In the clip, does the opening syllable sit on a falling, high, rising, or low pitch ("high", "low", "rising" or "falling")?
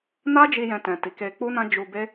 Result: high